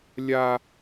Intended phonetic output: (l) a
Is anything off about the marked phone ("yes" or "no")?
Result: yes